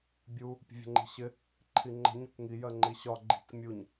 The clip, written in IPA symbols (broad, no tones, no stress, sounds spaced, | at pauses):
bʲ u | pʲ ə̤ vʲ ə̤ ŋ͡ǃ i̤ ɕ ɪ | ǃʰ i ŋ͡ǃ ə̤ ɲ ʊ kʷ ŋ i j ɜ ŋ͡ǃ i ɕ ɒ ɡ͡ǃ i̤ kʷ mʲ u ɲ